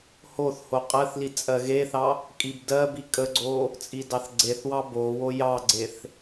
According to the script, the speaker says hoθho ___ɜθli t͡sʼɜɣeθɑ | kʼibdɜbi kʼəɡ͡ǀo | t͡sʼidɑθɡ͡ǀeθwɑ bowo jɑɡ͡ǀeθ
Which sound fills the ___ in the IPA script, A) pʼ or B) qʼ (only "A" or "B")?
B